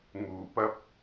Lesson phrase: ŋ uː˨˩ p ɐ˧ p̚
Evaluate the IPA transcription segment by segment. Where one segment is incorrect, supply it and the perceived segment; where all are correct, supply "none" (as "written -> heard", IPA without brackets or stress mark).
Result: none